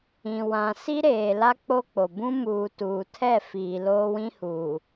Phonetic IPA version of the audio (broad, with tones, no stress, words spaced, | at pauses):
ĩ˨wã˨ si˦ɾeː˨la˦ k͡po˦k͡po˨ bũ˦muː˨tuː˨ tʰɛ˦˨ fiː˨ loː˦wĩ˦huː˨